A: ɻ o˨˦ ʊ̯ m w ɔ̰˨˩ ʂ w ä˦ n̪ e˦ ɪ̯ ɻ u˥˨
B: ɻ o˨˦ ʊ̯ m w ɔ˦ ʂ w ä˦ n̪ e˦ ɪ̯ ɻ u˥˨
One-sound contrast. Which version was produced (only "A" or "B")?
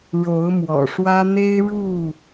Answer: A